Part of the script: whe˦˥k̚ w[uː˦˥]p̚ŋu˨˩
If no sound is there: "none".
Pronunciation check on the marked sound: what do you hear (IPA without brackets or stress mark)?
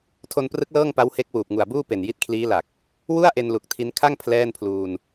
uː˨˩